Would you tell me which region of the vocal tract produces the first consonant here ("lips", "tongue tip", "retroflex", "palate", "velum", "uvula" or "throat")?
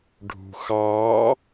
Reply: retroflex